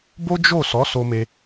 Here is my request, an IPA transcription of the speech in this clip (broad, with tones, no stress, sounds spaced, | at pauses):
b o˦ d͡ʒ o˦˨ s ɔ˨˦ s o˧ m e˧